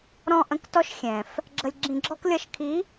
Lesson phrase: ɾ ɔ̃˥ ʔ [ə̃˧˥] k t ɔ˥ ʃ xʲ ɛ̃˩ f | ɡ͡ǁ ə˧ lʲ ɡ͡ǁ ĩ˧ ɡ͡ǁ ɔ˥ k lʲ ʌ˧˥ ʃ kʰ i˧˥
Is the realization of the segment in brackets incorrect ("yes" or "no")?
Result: no